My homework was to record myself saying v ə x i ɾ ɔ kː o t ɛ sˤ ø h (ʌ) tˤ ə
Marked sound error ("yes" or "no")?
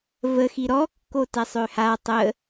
yes